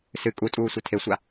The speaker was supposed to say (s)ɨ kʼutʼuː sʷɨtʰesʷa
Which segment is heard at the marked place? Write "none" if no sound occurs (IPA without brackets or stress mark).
s